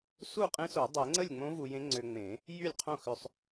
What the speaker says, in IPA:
s u˥˩ qʼ ẽ˧˥ s o˨˩˦ dˤ e˨˩˦ ŋ͡ǀ ə˥˩ lʲ ŋ͡m õ˧˥ v u˧ j ẽ˧˥ ŋ͡ǀ ø˧ ŋ͡m ẽ˨˩˦ | j y˥˩ lʲ qʰ õ˥˩ x ʏ˧ sˤ

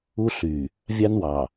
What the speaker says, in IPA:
u˦ ɬ y˨ | vʲ ɑ˦ n w ɑ˨

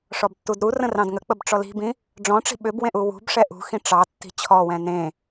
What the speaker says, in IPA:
ʂ ɔ b tː u d ɾ u r ə̃ r ɑ̃ d ŋ ə k͡p ə b ʈ͡ʂ ɔ l i̤ b ĩ | ɖ͡ʐ ɔ̃ ʈ͡ʂ i̤ ɓ ʏ b w ẽ ʔ u w ṳ b ʂ ɛ ʔ ṳ x ĩ ʈ͡ʂ ɑ tː i̤ t͡ɕʰ ɔ w ɛ̃ n ẽ

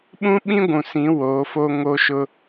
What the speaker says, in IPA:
ɓ ũ˦ ɓ ĩ˦ ɡʷ ũ˨ s ĩ˨˦ w oː˨˦ f o˦ ŋ o˦ ʃ ʊ˦

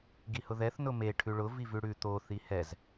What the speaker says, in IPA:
ɡ i h ʊ ð ɛ θ n ʊ m e ʈʰ ʉ ɭ ʊ v i v ʉ ɽ ʉ t̪ o θ i h ɛ z

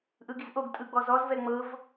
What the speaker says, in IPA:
ʔ ɯ ɡ i z ʔ o ɡ tʼ ɯ ɡ͡b ɔ z ɔ z v ɛ ŋ͡m ɤ v

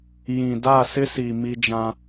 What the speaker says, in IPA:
j ĩ˨ d a˦˨ s ɪ˦ s i˨ m i˦ d͡ʒ ã˦

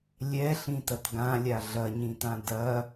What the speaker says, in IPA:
lʲ ɛ ɬ ĩ t ɐ t ɡ ã lʲ a ɮ ɐ ɲ ĩ t ã d ɐ

